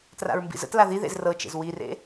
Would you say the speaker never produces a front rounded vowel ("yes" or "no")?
yes